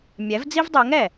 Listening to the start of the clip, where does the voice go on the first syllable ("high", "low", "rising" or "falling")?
rising